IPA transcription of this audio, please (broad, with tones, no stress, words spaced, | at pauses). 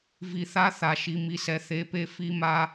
vi˨θa˦ θa˨ʃi˨mi˨sɛ˨ θe˨pe˦ fi˦ma˦